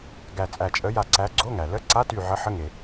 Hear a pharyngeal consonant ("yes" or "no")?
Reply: yes